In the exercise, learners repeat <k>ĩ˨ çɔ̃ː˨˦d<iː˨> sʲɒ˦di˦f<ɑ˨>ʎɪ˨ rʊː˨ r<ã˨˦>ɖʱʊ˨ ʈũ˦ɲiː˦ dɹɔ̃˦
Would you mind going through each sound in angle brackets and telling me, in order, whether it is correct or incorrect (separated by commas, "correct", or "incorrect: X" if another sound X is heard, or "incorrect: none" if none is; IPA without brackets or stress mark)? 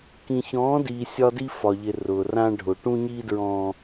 correct, correct, incorrect: ɒ˨, incorrect: ã˦